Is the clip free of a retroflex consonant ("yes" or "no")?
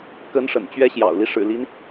no